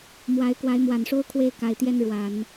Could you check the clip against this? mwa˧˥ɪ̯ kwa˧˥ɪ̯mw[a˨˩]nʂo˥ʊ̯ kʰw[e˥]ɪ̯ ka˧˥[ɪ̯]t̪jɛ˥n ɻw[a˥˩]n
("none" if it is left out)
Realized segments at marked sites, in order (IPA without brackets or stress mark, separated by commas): a˨˩, e˥˩, ɪ̯, a˨˩˦